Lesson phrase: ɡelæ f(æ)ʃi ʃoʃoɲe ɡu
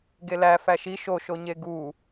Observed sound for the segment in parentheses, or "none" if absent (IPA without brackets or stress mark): æ